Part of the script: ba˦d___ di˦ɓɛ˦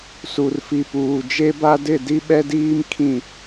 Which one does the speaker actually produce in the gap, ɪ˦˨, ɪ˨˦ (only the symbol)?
ɪ˦˨